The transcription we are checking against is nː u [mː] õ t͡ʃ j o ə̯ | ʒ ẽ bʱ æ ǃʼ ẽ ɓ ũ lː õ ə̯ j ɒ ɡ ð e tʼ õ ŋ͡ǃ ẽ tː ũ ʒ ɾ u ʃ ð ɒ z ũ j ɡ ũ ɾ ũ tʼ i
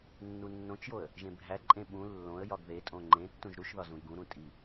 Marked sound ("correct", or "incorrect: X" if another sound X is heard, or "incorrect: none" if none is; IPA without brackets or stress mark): incorrect: nː